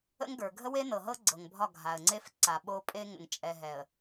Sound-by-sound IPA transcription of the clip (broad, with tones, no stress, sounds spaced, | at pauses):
ə̰˦ ŋ ɡ ə˞˨ ɡʱ ə˦ w e˦ n ɤ˨ ɦ ɤ˦ ɡ͡ǀ ɤ˨ ŋ bʱ ɒ˦˨ ɡʱ a˨ ə̯ ŋ͡ǀ e˦ f ǀ a˨ ɓ o˦ pʼ e˦ ŋ ə̰˨ ŋ t͡ʃʼ ɛ˨ ɦ ɛ˨ ə̯